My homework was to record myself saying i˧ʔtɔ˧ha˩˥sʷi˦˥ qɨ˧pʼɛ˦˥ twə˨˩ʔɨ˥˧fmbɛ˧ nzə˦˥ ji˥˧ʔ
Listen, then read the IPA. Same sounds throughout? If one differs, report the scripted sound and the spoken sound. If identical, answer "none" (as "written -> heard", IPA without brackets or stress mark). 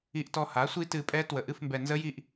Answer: q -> t